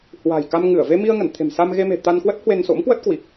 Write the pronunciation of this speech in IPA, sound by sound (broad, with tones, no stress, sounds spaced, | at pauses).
h w a̤˨˩ j k a˧ m ŋ ɨ˧˩ ə̯ v e˧ m i˧ ə̯ ŋ ə˧˩ n t̪ʰ e̤˨˩ m s a˧ m ɣ e˧ m e̤˨˩ t̪ a˧ n k w ə˦˥ t̚ h w e˧ n s o̰˧˥ m k w ə˦˥ t̚ k w i˨˩ k̚